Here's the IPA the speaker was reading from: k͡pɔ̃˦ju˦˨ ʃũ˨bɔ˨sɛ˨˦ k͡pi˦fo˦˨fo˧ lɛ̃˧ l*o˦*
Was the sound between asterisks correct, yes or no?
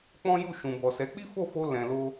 yes